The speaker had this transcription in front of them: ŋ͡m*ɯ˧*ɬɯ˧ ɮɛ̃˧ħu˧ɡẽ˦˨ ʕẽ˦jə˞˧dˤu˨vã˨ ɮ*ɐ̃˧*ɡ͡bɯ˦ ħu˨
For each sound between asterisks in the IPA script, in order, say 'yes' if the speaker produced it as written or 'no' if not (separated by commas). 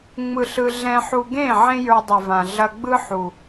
yes, no